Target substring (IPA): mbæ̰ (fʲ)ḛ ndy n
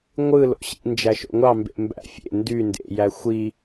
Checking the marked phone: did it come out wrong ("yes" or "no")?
no